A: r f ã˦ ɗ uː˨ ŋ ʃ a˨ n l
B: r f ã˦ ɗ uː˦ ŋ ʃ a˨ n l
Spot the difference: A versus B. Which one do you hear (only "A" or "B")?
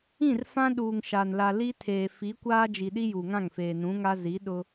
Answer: A